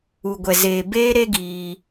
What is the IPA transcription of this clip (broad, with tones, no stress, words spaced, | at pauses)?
u˨ɡʷɛ˨zeː˨ beː˦ɾe˦ɡiː˧